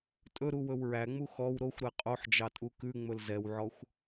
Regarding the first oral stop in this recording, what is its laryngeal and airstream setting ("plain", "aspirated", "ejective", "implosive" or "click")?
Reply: ejective